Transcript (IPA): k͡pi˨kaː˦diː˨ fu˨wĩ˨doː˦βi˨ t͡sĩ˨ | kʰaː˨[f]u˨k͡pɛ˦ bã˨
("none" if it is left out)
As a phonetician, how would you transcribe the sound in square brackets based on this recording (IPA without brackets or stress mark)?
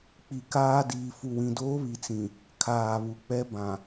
β